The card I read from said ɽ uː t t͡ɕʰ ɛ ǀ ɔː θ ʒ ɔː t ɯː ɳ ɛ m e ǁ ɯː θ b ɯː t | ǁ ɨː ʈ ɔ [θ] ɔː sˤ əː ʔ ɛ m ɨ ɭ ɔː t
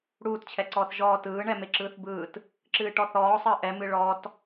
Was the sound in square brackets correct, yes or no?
yes